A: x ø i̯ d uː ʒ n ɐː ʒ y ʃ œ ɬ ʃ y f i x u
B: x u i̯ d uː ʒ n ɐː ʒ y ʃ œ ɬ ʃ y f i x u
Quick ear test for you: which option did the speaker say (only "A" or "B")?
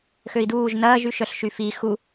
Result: A